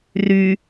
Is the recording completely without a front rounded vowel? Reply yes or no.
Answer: no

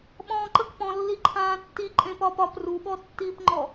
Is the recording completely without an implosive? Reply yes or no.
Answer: no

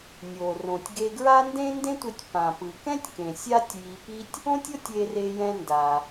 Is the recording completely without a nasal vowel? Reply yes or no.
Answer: no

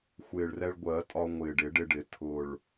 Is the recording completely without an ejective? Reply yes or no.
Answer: no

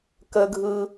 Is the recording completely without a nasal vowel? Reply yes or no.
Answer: yes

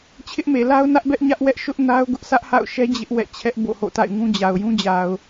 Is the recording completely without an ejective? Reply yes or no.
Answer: yes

